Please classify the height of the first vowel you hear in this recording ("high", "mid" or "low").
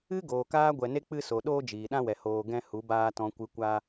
high